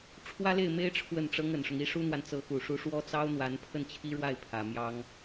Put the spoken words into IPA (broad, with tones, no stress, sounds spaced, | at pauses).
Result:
ʈ͡ʂʰ w ä˥ l e˥˩ ɪ̯ m e˥ ɪ̯ ʈ͡ʂʰ w ə˥˩ n ʈ͡ʂ ɤ˥ ŋ ə˨˩ n ʂ ʊ˦ ŋ i˧˥ ʂ u˥ n̪ w a˨ n t͡s ɤ˧˥ x u˨˩ ʂ u˧˥ ʂ w ɔ˥ t͡s ɑ˥ ʊ̯ n̪ w a˧˥ n pʰ ə˥˩ n t͡ɕʰ i˥ ɻ w a˥˩ ɪ̯ pʰ ä˨˩ m j ɑ˥ ŋ